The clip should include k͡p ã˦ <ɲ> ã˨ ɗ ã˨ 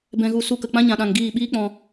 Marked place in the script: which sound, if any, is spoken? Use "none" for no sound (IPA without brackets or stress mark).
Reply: ɲ